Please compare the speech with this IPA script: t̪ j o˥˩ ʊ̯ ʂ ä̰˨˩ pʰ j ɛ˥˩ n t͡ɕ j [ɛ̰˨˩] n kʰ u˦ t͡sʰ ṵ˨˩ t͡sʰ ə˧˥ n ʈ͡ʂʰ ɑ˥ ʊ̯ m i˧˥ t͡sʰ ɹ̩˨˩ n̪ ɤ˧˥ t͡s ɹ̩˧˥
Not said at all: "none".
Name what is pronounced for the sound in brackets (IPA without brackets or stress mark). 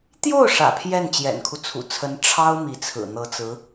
ɛ̰˨˩